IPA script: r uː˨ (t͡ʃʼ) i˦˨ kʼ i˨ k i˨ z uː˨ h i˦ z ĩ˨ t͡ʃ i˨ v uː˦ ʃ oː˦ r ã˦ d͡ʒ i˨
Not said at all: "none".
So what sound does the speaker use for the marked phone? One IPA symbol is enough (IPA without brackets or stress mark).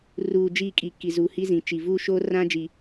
d͡ʒ